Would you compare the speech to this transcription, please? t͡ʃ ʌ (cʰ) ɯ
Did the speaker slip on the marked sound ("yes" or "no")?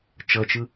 yes